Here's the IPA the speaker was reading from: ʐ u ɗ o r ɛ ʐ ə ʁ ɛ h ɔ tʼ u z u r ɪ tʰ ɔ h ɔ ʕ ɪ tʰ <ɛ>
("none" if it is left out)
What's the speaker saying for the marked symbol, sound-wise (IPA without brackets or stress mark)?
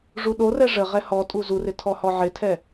ɛ